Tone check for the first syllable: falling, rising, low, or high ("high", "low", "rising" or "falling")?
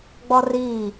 high